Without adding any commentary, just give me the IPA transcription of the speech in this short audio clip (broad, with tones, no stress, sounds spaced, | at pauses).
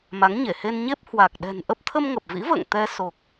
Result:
m a˨˦ ŋ ɲ e˧˩ h e˧ n ɲ e˦˥ p̚ h w a˨˩ k̚ ɗ ɛ̤˨˩ n ʔ ə˦˥ p̚ t̪ʰ ə˧ m ŋ ə˨˩ p̚ v ḭ˧˥ v ə̰ː˧˨ ŋ t̪ ɛ˧ s o˨˩ k̚